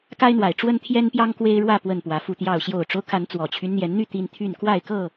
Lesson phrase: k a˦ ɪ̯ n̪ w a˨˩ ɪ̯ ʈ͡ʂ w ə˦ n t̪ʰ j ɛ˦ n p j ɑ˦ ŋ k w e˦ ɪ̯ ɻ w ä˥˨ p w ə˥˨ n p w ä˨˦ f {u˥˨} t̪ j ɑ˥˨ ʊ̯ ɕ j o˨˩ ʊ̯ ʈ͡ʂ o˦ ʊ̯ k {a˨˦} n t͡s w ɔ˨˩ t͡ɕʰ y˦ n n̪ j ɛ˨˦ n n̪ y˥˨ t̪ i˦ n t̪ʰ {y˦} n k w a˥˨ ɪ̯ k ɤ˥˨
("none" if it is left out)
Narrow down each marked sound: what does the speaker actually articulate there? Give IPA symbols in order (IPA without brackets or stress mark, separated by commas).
u˥˨, a˨˦, y˥˨